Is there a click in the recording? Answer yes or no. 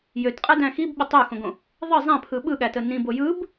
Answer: no